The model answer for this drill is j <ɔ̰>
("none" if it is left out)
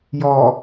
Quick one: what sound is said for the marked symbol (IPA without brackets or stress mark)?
ɔ